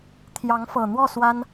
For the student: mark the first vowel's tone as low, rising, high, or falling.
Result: rising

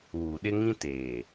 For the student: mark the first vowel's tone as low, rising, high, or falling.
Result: low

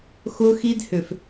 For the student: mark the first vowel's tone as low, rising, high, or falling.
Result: high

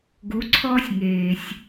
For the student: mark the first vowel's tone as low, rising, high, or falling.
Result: rising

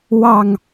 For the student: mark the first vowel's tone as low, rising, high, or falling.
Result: low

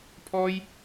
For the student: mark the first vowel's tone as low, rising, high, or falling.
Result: high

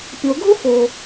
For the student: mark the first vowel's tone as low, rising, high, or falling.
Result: low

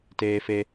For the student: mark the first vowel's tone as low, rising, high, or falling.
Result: high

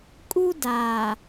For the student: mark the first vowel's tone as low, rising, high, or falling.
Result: high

